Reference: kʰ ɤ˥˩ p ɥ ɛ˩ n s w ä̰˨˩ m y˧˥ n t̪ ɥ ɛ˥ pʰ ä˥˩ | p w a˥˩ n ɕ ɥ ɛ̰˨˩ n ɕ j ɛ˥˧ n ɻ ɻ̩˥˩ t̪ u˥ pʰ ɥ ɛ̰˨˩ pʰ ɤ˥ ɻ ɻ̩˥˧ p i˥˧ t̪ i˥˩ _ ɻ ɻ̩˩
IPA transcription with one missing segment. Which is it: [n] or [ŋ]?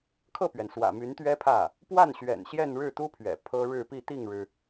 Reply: ŋ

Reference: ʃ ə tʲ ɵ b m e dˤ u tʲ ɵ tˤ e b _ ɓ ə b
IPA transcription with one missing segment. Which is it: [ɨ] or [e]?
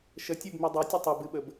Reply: ɨ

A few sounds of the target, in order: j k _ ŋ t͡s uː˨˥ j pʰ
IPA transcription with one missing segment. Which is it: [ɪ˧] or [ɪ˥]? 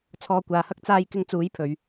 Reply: ɪ˥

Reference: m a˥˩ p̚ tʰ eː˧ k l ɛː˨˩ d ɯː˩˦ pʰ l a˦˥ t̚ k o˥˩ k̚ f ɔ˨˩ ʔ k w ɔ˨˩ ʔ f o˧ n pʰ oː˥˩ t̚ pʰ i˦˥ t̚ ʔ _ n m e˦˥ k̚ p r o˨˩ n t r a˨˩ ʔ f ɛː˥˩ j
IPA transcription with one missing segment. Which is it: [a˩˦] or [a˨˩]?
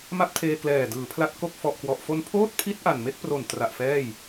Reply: a˨˩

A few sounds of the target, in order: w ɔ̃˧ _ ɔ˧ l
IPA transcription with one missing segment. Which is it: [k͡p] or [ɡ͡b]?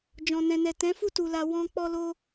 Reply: k͡p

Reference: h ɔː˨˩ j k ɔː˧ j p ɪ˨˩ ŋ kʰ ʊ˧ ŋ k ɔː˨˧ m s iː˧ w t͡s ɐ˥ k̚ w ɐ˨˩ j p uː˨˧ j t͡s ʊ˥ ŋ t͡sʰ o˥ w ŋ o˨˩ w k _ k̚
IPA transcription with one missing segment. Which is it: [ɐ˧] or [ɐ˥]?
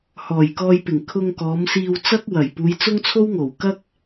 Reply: ɐ˥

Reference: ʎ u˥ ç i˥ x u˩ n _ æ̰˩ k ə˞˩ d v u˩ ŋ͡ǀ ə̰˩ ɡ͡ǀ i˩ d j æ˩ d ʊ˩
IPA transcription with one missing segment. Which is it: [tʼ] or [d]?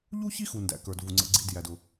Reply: d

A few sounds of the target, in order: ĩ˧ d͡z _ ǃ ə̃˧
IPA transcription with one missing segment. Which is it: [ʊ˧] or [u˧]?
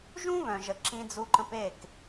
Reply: u˧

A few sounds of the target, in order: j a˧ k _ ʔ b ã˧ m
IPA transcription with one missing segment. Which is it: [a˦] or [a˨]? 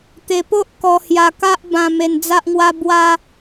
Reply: a˦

